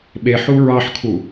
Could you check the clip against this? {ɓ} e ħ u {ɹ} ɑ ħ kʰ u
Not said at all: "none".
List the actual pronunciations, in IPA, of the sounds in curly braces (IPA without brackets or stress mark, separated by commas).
ɓ, ɹ